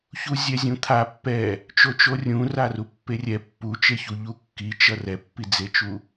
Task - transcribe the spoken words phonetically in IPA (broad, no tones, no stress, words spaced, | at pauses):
çuzʲɛzʲũt̪ʰa pːɛ | t͡ʃot͡ʃorʲũ rarupːerʲɛ pːut͡ʃeçu ʎukːit͡ʃʌ rɛpːid͡zet͡ʃu